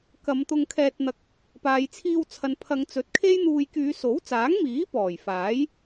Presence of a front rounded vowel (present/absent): present